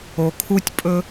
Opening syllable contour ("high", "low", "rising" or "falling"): low